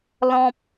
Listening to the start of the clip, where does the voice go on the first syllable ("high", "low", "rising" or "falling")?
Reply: high